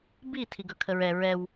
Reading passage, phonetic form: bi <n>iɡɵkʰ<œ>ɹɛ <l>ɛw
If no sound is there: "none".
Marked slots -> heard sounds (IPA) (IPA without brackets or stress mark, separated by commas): tʰ, ə, ɹ